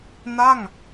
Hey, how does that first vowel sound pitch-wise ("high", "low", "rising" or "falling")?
falling